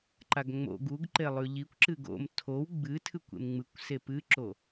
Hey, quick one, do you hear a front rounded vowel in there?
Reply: no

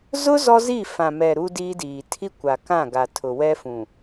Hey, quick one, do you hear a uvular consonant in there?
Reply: no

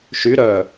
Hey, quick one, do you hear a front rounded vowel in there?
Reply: yes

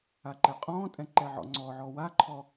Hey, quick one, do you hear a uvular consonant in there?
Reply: yes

